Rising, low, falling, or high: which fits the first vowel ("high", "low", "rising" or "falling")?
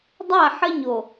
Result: falling